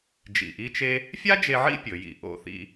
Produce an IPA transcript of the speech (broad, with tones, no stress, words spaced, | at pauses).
d͡ʒḭ˧˩ʔi˥t͡ʃe˥ | fʲa˥d͡ʒe˧ʕḭ˥˧ pʲɵ˩˧jḭ˧˩ʔo̰˥˧ θḭ˧